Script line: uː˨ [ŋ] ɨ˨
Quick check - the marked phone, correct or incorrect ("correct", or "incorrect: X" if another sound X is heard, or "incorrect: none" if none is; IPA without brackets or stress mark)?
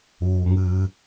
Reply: correct